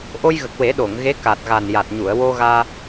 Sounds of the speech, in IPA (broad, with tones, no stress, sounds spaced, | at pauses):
ʔ o˧ j ɣ ə˨˩ k̚ w e˨˩˦ ɗ o˨˩˨ ŋ ɣ e˧˥ k a˨˩ t̚ ɣ a˨˩ n j a˨˩ t̚ ɲ u˨˩˨ ə̯ w o˧ ɣ aː˧